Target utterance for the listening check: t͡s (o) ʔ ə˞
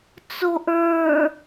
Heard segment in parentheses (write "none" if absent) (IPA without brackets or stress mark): o